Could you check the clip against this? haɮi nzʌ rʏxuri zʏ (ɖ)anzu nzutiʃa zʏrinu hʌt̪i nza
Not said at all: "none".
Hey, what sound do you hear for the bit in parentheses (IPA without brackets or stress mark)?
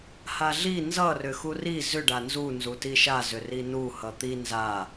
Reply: ɖ